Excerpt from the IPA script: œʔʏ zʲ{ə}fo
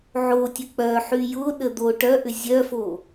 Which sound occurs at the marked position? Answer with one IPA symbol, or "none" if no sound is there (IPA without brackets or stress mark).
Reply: œ